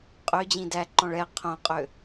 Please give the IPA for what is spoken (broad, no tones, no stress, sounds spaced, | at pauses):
qʼ ø d͡ʑ ĩ d æ ǃ ɔ̃ ɭ ɛ qʰ õ qʼ ø